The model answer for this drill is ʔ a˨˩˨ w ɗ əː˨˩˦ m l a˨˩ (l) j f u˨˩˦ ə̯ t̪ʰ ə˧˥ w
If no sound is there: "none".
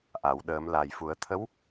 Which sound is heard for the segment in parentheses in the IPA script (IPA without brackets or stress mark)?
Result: none